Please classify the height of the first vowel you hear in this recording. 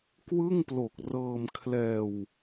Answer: high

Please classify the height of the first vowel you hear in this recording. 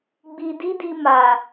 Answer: high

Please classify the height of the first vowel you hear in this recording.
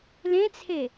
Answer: mid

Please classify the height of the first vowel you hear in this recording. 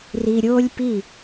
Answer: high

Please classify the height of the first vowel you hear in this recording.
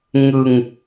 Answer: high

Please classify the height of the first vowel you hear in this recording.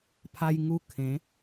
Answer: low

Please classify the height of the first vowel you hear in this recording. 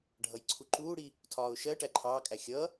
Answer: mid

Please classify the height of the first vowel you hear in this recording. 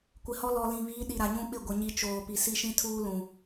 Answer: high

